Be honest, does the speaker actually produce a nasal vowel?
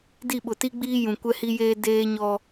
yes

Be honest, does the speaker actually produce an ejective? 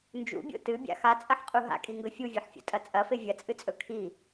yes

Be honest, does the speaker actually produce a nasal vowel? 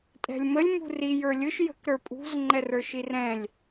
yes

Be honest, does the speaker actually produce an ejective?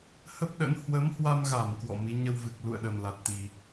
no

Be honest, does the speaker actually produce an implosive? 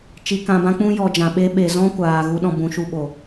yes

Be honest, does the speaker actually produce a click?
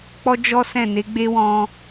no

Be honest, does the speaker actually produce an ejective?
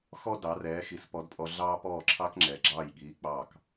yes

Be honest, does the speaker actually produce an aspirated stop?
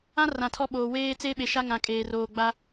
yes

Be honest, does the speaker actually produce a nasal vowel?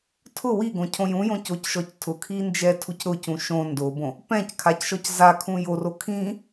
yes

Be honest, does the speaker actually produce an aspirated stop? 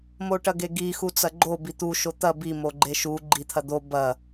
yes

